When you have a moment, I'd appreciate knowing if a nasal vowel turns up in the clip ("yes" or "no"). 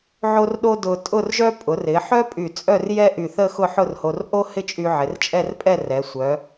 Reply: no